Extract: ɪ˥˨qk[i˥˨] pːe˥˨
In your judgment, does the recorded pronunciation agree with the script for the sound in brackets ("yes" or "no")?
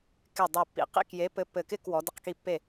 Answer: yes